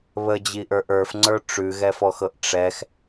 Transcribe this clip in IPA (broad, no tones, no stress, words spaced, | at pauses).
βəd͡ʑiʔə˞ʔ ə˞fŋ͡ǀə˞ ʈ͡ʂʉɣɛfɔxɤʔ ʈ͡ʂɛx